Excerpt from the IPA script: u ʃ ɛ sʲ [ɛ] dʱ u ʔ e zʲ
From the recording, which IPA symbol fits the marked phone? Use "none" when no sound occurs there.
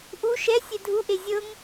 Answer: ɛ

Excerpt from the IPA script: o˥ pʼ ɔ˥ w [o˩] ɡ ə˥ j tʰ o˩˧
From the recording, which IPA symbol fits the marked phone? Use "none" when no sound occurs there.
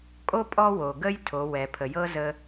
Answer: o˩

